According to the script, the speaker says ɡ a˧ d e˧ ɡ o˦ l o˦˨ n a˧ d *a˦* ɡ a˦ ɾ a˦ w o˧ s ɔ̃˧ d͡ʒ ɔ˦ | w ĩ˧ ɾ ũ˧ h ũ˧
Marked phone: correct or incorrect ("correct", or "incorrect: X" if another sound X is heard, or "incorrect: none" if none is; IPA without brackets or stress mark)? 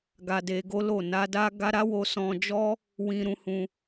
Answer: correct